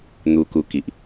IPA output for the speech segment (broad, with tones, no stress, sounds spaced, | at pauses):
n̪ u˧ k u˧ k i˨ ʔ